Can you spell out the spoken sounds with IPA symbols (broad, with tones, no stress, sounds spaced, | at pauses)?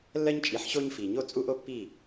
lː ɜ˦ ɲ t͡ʃʼ i˨˦ ħ ɕ o˦ ɲ f i˨ ɲ o˦ t͡sʼ u˦ ʔ o˦ pː i˦˨